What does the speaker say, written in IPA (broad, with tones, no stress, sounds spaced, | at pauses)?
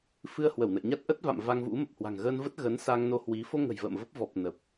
f ɨ˧ ə̯ h w ə˧˩ w n ə̰˧˨ j ɲ a˦˥ t̚ ʔ ə˦˥ t̚ v a̰˧˨ m v a˧ ŋ v ṵ˧˥ m ə˨˩ p̚ h w a̤˨˩ ŋ ɣ əː˧ n v ə˦˥ t̚ ɣ ə˨˦ n s a˧ ŋ n o˧ h w i˨˦ f o˧ ŋ ə̤˨˩ j v ə̰ː˧˨ m v ə˦˥ p̚ v ɔ˨˩ p̚ n ə˨˩ p̚